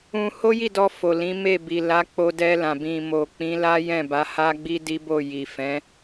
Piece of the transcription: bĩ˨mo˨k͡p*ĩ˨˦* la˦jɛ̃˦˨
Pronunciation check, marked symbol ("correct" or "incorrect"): correct